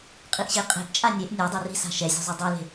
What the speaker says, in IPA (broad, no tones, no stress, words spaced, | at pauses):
qʼiʔɕeqʼe̤ʔt͡ʃʼa nʲeʔ nʲɯ dˤeri̤sa̤ ʃɛzʲṳ zˤudˤɛle̤